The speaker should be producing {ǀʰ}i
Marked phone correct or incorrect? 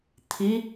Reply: incorrect